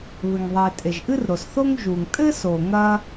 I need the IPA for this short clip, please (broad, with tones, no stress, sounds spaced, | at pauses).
β ɘ˩ ŋ ðˤ e˩ tʼ e˩ ʒ ʔ ɨ˥ r ɾ o˩ s θ o˥ ŋ ʒ u˩ ŋ tʼ ɘ˥ s o˩ ŋ ɐ˥